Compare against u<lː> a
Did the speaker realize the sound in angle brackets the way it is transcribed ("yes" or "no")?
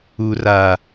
no